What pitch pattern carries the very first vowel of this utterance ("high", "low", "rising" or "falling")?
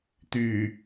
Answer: low